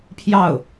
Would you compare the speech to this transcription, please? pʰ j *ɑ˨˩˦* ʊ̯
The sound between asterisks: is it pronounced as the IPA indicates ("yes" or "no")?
no